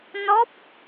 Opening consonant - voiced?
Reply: yes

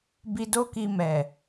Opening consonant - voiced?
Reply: yes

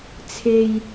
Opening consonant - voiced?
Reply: no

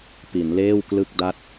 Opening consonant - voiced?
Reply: no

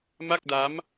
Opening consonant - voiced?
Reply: yes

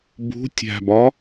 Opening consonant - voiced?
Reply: yes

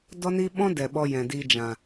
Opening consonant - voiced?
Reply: yes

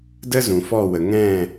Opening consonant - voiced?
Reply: yes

